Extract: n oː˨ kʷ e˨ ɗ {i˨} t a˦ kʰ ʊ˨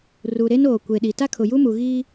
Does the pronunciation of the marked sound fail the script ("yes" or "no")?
no